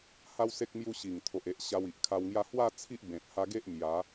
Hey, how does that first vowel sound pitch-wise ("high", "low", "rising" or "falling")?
high